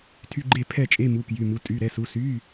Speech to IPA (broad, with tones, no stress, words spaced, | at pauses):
tʰy˧˥˧ɡ͡ǃe˥˨pʰɛ˥˨t͡ʃʼe˧˥˧ mu˧˥˧kjy˧˥˧mu˧˥˧ tʼy˧˥˧ɾɛ˧˥˧su˧˥˧ sy˧˥˧